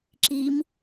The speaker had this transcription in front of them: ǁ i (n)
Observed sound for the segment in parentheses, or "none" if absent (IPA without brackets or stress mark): m